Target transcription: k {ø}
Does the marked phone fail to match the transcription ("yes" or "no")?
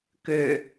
no